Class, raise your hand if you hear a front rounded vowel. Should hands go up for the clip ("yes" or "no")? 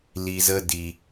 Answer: no